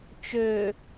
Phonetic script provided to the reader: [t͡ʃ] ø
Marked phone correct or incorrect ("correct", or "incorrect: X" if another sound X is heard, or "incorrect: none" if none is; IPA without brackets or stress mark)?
correct